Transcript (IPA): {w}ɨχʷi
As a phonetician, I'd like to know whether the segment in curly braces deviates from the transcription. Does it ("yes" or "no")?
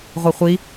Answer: yes